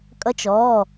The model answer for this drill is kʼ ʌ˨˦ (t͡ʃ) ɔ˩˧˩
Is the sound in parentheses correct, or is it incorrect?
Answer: correct